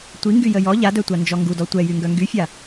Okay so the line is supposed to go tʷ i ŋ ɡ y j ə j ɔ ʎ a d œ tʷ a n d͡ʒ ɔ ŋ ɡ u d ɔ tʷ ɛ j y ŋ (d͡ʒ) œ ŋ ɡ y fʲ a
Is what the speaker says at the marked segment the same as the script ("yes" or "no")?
no